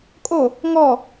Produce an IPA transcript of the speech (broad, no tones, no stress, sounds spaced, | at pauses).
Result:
kʼ o | ŋ ɔ